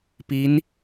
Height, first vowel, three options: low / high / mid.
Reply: high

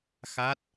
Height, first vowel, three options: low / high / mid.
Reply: low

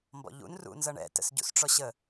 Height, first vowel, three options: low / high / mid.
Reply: mid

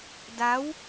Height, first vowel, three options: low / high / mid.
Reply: low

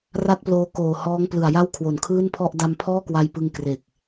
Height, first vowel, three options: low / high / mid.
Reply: low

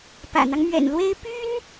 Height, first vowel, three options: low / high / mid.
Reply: low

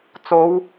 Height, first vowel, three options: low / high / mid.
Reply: mid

